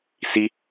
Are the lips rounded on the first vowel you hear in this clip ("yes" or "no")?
no